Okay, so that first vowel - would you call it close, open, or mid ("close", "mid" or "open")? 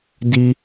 close